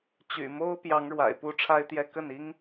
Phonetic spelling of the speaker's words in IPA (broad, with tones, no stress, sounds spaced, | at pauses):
t͡ɕ y̰˨˩ m o˥ ʊ̯ p j ɑ˧˥ ŋ ɻ w a̰˨˩ ɪ̯ p u˧˥ ʈ͡ʂʰ a˥ ɪ̯ t̪ j ɛ˥ k ə˥˩ n i˥ ŋ